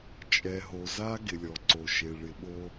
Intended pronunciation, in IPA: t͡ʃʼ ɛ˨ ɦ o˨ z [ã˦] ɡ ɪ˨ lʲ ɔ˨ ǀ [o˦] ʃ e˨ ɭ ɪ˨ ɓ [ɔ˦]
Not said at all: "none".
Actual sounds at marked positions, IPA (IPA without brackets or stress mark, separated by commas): a˦, o˨, o˦